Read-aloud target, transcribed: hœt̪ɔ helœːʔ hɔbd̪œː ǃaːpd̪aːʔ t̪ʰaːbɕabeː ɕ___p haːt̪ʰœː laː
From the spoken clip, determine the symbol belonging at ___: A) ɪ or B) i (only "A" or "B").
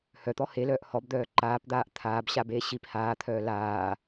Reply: B